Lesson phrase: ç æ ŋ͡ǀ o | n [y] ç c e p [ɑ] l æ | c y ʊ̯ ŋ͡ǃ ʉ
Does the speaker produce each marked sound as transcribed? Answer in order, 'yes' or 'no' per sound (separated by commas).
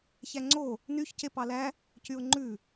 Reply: yes, yes